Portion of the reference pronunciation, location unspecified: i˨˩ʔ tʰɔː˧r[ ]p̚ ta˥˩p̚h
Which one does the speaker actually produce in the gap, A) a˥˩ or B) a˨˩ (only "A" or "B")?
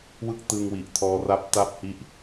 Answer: A